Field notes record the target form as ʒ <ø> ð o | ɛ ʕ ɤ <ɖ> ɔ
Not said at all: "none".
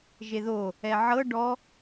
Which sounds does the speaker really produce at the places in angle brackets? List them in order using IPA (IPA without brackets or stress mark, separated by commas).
e, ɖ